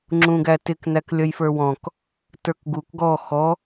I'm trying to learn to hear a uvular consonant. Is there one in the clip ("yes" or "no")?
no